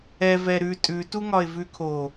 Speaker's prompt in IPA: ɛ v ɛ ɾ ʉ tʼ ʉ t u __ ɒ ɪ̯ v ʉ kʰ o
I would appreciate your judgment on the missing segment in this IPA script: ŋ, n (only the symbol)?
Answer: ŋ